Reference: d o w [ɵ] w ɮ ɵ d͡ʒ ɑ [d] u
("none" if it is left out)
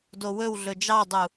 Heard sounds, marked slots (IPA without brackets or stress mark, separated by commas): ɵ, dˤ